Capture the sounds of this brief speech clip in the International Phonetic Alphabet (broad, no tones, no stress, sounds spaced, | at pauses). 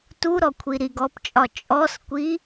t u ɾ ɔ kʷʰ i ɾ i ɡ ɔ p t͡ʃʼ ɒ t͡ʃʼ ɔ s kʷ i